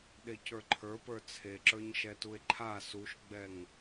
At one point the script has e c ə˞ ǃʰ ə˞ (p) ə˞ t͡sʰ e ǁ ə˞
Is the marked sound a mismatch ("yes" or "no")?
no